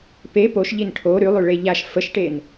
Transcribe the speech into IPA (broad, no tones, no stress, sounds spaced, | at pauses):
p e p o ʃ ʎ i n ʈʰ o ɾ y lˠ y ɭ e ʎ a ʃ f ə ʃ ʈ e n